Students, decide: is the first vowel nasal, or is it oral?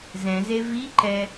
nasal